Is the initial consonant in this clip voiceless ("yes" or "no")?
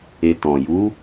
yes